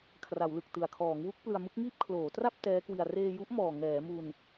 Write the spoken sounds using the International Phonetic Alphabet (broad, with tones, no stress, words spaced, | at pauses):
kʰra˩˦wlɯ˨˩k̚ tɯ˨˩a̯kʰɔː˩˦ŋwu˦˥k̚ plɯ˧a̯mɯ˦˥k̚ŋiː˥˩p̚ kʰloː˩˦tra˥˩p̚ tɛː˦˥kwi˧a̯ reː˧ju˦˥ʔ mɔː˨˩ŋɛː˩˦mu˧n